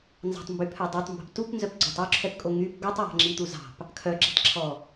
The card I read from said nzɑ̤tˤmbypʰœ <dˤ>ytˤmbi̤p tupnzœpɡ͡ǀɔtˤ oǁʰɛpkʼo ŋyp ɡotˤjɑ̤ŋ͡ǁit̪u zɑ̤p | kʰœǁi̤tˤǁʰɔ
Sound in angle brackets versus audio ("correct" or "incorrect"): correct